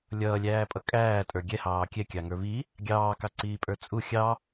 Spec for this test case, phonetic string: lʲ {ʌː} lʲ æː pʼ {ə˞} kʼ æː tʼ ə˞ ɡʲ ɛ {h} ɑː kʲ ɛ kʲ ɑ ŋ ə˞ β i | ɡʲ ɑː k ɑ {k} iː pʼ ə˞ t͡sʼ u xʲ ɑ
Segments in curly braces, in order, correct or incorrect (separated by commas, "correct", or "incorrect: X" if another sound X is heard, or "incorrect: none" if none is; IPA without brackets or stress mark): correct, incorrect: ʌ, correct, incorrect: ǀ